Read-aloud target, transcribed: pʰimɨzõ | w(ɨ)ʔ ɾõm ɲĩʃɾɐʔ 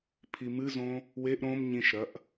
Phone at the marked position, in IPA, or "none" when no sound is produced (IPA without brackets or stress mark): e